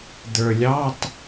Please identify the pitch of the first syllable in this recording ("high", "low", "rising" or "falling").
low